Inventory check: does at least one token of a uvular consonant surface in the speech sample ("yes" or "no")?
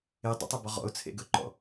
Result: yes